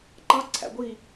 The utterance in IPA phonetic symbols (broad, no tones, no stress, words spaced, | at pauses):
ǃɑ ǀʰæ̰ɡʷi